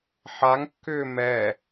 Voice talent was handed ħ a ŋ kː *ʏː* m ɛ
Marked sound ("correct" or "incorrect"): correct